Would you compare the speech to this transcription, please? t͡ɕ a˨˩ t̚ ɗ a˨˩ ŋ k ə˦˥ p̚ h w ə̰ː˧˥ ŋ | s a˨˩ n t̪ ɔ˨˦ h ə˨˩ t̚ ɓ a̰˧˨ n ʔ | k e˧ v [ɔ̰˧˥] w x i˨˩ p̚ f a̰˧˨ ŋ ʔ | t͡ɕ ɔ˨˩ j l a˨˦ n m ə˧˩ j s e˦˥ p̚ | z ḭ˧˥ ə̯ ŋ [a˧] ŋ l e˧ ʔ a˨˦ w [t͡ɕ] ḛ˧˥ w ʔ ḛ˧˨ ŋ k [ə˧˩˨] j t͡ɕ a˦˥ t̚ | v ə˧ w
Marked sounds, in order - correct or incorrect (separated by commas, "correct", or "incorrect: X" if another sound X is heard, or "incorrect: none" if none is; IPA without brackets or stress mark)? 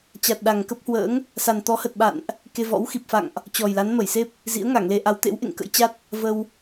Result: correct, incorrect: a˧˩, incorrect: t̪, incorrect: ə̰˧˥